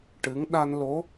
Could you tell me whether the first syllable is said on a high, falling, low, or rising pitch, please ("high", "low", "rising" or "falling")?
rising